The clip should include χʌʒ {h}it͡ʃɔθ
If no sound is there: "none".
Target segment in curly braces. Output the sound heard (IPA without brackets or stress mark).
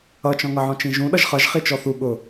χ